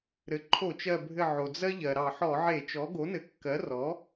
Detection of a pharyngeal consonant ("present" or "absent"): present